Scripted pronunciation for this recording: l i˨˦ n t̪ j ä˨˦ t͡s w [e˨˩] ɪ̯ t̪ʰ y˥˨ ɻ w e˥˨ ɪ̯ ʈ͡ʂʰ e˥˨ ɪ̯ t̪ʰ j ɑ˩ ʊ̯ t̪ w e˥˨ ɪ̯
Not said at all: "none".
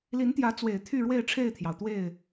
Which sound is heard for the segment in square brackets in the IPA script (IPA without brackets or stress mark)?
e˨˩